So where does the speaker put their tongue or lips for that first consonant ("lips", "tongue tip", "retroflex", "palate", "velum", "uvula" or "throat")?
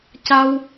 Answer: palate